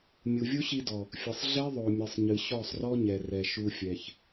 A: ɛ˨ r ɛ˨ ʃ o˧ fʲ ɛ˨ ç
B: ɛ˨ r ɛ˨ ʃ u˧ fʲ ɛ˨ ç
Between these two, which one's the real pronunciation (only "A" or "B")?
B